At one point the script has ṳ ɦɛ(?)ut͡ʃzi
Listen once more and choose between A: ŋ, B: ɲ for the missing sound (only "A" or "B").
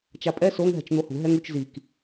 A